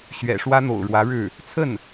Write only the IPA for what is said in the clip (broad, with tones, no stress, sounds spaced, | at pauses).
ɕ ɥ ɛ̰˨˩ ʂ w ä˥ n̪ o̰˨˩ ʊ̯ ɻ w ä˧˥ ɻ ɻ̩˥˩ | t͡sʰ ə˥˩ n